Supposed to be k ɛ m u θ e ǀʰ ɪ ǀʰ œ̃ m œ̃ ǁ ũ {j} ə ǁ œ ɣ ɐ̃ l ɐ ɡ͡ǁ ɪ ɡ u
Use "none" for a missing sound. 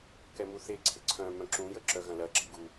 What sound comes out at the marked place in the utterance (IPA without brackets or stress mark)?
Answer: j